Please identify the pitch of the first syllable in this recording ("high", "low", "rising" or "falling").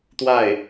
falling